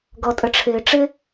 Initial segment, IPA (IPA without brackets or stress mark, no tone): ɡ